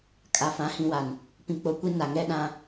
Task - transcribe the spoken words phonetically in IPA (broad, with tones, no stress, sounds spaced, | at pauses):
kʼ a˨ f ã˨˦ h ĩ˨ w a˨ n | p ĩ˨ k͡p o˨ kʷ i˦ n a˨ ŋ ɛ˦ ɗ ã˦